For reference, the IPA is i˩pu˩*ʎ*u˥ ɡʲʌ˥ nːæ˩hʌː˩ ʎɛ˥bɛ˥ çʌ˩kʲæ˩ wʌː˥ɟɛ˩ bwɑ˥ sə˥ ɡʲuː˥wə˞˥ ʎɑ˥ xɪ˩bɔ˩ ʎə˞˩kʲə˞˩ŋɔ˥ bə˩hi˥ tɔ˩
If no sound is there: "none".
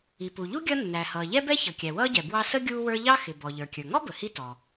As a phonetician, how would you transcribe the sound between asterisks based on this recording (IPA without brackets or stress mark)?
ʎ